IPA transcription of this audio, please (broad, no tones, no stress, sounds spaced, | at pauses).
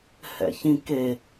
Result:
h ɛ̰ ç ĩ k e